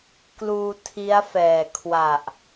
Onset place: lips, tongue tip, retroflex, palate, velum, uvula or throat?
velum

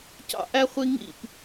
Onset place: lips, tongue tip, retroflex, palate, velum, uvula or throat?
palate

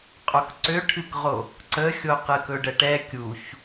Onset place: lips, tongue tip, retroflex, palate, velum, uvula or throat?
uvula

